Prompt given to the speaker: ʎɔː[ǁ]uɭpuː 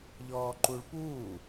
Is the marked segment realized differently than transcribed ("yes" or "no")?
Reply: yes